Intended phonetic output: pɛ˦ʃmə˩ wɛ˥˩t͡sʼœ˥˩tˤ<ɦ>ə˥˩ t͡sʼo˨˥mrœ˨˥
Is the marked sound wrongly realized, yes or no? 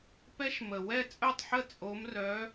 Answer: yes